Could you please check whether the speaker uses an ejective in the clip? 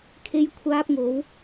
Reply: no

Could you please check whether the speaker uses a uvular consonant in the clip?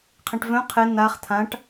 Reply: yes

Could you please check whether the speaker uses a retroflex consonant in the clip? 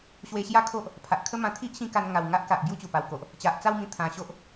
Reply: no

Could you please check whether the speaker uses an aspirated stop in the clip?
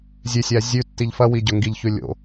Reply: no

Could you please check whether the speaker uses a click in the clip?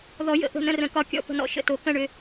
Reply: no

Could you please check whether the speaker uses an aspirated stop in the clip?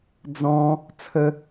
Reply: yes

